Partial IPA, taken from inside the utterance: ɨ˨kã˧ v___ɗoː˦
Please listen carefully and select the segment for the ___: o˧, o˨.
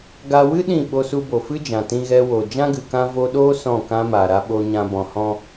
o˧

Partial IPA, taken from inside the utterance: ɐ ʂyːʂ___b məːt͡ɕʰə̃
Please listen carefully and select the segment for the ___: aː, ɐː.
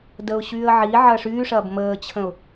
ɐː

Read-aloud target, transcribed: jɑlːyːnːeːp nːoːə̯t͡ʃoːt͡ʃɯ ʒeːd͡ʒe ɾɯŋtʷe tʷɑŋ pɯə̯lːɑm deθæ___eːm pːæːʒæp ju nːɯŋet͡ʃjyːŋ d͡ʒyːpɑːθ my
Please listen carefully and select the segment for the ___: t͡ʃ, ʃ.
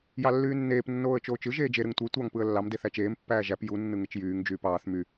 t͡ʃ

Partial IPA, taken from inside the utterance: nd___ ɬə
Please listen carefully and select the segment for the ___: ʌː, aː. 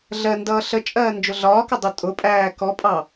ʌː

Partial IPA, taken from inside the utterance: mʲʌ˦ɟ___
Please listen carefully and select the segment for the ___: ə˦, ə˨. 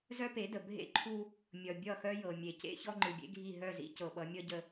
ə˦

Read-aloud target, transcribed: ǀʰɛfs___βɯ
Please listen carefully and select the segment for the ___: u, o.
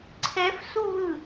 u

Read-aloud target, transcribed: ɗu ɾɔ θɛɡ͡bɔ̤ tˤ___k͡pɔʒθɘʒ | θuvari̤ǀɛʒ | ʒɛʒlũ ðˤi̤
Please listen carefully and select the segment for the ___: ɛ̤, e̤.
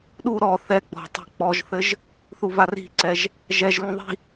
ɛ̤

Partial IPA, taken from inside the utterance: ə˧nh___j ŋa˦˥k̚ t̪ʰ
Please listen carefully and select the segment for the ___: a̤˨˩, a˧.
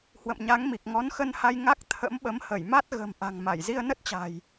a˧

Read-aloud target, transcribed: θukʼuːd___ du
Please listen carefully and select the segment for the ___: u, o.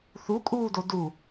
o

